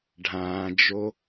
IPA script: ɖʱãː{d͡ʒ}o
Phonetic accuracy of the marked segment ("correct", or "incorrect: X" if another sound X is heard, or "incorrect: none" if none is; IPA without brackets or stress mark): correct